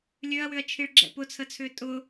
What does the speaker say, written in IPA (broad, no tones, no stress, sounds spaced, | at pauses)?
lʲ ø ɐ̯ w ʏ ɐ̯ t͡ʃʰ i ɭ ɡ͡ǁ ɛ̰ p ʊ t͡sʰ ə t͡sʰ ʏː tʼ ʊ